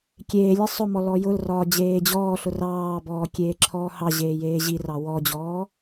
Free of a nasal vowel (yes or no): yes